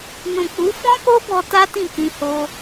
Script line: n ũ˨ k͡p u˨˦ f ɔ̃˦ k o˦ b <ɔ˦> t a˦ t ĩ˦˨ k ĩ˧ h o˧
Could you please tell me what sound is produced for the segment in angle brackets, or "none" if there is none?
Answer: ɔ˧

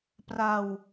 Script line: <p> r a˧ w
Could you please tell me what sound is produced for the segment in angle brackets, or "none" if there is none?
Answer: p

